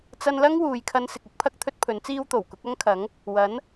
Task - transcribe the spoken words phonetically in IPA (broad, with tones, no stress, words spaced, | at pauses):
t͡sɐ˧nlɐ˥ŋ wuː˨˧jkʰɐ˧nsɪ˨k̚ʊ˥k̚ pʰɐ˧k̚t̪ʰɵ˧t̚ pʰɵ˨˥nt͡siː˥wt̪o˨˩w kʊ˨˥k̚ɐ˥ŋkʰɐ˨˥ŋ | wɐ˨˥n